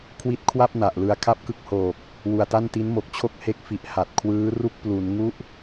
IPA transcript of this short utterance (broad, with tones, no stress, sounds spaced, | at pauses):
kʰ w i˦˥ t̚ kʰ w a˥˩ p̚ n a˨˩ ʔ l ɯ˧ a̯ kʰ a˥˩ p̚ k ɯ˦˥ k̚ h oː˨˩ k̚ | w u˨˩ a̯ t a˥˩ n t i˦˥ n m o˨˩ k̚ t͡ɕʰ o˥˩ k̚ h e˦˥ k̚ f i˨˩ ʔ h a˨˩ t̚ kʰ w ɯː˦˥ r u˥˩ k̚ p l u˩˦ n ŋ u˦˥ ʔ